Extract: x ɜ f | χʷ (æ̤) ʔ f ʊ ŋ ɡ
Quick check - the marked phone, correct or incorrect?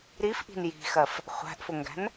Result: correct